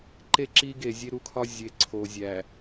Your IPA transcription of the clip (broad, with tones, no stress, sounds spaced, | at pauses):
ǃ e˦˨ ǁ i˦ ɡ e˨ zʲ e˦ ɾ u˦ kʰ ɒ˦ zʲ e˨ ǀʰ o˨ zʲ æ˨